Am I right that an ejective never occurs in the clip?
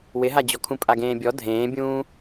no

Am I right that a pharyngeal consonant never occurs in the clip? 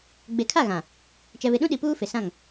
yes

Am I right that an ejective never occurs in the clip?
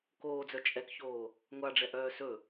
no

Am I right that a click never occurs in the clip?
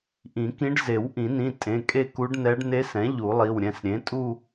yes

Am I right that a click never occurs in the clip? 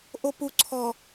no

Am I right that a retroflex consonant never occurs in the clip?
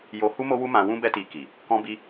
yes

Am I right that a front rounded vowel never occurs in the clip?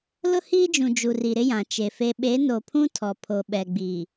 yes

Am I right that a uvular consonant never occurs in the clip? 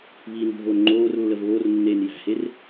yes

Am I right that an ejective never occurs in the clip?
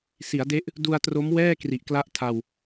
yes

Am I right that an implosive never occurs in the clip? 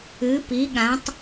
no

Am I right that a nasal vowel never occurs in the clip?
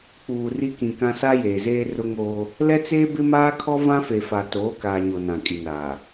no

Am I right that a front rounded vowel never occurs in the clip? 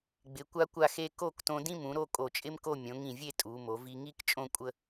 yes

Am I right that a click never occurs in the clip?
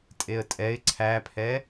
no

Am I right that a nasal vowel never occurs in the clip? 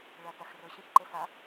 no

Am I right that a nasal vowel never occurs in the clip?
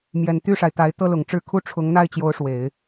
yes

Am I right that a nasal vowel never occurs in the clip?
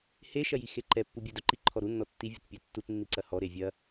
yes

